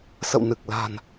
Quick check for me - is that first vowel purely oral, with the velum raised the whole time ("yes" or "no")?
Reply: yes